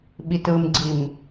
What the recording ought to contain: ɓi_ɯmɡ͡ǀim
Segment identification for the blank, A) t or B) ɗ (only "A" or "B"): A